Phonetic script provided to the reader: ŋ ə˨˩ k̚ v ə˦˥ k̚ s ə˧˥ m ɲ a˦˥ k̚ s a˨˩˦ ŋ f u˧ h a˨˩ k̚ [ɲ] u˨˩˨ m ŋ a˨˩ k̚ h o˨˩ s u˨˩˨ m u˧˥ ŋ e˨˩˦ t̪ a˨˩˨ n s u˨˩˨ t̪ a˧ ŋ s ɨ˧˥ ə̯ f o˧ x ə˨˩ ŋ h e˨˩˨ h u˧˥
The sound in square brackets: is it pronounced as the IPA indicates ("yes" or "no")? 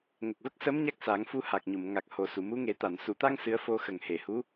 yes